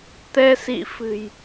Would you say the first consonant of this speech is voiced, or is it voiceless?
voiceless